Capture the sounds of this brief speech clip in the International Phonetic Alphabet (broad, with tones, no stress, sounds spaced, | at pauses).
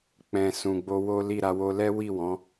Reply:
k͡p ɛ̃˨ s ũ˨ ɡ͡b o˧ w o˦ l i˦˨ ɾ a˧ w o˧ l ɛ˦ w i˦˨ w ɔ̃˨˦